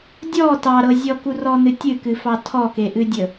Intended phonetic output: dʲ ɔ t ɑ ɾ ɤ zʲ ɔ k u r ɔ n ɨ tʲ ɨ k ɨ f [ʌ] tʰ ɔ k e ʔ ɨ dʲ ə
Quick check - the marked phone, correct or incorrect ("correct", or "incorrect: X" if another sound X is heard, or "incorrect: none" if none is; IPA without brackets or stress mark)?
incorrect: ɑ